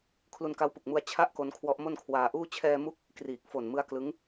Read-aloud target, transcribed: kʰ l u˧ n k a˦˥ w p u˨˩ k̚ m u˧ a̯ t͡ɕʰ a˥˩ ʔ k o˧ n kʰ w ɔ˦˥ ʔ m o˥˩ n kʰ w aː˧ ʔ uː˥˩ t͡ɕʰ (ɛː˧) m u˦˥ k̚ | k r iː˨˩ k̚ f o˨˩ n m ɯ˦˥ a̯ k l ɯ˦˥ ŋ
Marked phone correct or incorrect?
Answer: correct